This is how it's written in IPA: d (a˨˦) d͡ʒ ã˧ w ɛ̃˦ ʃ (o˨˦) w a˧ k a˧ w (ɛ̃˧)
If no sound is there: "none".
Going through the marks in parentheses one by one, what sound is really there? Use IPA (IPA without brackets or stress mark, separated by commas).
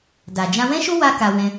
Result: a˨, o˦, ɛ̃˧